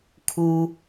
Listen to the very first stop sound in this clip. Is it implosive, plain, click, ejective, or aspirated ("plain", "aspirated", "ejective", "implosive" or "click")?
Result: aspirated